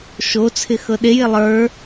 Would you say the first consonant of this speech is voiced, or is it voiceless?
voiceless